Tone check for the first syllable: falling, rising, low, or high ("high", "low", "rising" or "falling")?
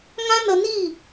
high